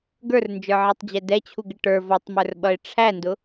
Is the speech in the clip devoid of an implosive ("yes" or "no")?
no